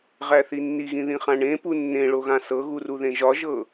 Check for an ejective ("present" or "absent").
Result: absent